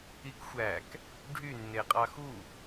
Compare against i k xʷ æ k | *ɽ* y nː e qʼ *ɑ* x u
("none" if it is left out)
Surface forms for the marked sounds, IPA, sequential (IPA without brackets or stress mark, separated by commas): ɖʱ, ɑ